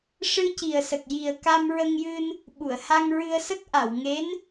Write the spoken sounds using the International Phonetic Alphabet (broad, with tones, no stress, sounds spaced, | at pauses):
ʂ ɨ˧ c i˨˩ ə̯ s ə˨˩ k̚ j i˨˩ ə̯ k a˧ m ɹ ə˧ ŋ j ɨ˧ n | ɓ u˨˩˨ ə̯ h a˧ ŋ ɹ ɨ˧ ə̯ s ə˦˥ k̚ ʔ a˨˩˨ w ŋ e˧˥ n